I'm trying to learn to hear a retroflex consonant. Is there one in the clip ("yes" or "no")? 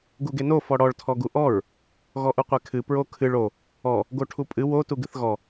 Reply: yes